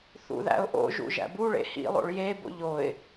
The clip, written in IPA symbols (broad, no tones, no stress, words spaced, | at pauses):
θṵðæ̰ʊ̯ʔo̰ʒṵ ʒæ̰buɭḛ hḭlˠo̰ɭ jebo̰ʎ oɪ̯